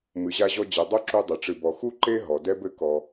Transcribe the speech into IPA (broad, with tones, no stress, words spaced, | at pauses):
mɨ˨ʑa˧ʑɔ˧ d͡ʑe˨dˤo˦ǁu˧dˤɘ˨ ʈ͡ʂɨ˨bɔ˨ xu˦ǃe˦ ɦɔ˨dɛ˦bɘ˦ kɔ˧